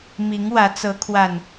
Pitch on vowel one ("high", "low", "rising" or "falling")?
rising